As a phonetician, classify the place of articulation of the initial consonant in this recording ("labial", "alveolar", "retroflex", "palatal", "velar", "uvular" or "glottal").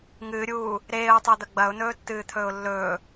velar